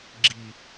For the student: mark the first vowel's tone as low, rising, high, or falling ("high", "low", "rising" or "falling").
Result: low